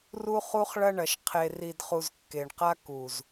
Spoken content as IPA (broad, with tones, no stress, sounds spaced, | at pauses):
r u˦ χ u˦ χ ɭ ɐ˦ ɳ ɐ˨ ʃ qʰ e˨ r i˨ d χ u˨ z kː e˨ ɳ q a˦ k u˨ z